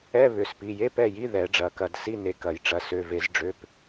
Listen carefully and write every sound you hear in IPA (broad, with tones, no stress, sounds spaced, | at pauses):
ɛ˧˥˧ β ʏ˩˧˩ s p i˩˧˩ j e˧˥˧ p ɛ˩˧˩ j i˧˥˧ ð ɛ˨˩˦ ɖ͡ʐ ɐ˩˧˩ k ɐ˧˩ d s i˧˥˧ n e˩˧˩ k ɐ˨˩˦ j ʈ͡ʂ ɐ˩˧˩ s ø˩˧˩ v e˨˩˦ z ɖ͡ʐ ø˩˧˩ p